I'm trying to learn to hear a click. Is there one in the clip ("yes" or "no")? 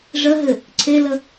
yes